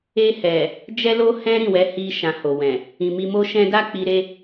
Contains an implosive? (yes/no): no